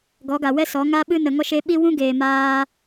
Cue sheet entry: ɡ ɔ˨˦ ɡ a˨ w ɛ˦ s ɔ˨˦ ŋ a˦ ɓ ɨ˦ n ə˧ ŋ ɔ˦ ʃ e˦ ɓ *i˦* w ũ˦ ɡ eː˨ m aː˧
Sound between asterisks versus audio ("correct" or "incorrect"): correct